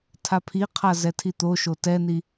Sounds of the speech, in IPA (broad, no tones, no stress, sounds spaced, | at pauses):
tʰ a pʰ i qʰ a z ɛ tʰ i t̪ o ʃ o t ɛ n i